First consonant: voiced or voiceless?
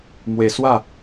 voiced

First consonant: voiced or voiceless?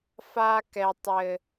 voiceless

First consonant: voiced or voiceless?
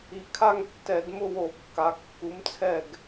voiceless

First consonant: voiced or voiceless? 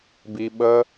voiced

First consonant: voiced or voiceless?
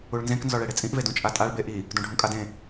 voiced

